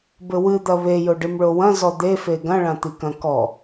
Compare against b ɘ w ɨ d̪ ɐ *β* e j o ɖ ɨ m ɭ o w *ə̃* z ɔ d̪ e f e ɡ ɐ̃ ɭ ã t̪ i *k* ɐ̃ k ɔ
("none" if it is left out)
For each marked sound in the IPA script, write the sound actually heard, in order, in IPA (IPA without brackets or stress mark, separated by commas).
β, ɐ̃, k